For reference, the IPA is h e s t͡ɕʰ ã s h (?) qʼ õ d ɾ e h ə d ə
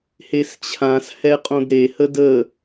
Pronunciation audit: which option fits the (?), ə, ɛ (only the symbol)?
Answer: ɛ